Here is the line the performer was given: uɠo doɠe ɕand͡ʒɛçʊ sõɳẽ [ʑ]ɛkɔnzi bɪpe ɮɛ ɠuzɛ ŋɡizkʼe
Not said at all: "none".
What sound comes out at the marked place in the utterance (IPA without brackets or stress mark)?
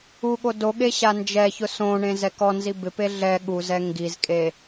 z